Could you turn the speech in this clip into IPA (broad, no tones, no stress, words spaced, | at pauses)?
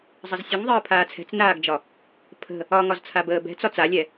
zˤəzsʲəŋðˤəː pʰaːt͡sʰɛ̤t͡snaːɡd͡ʒɒ | pʰə̤ | ɒŋɒzt͡sʰabəː bɛ̤t͡sɒ t͡salʲɛ